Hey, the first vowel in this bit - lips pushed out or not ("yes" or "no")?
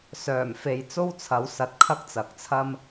yes